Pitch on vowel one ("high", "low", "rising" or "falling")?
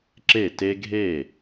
falling